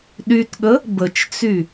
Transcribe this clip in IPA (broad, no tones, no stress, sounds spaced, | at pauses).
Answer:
ɗ y t ɠ ə | b ə t͡ʃ t͡s y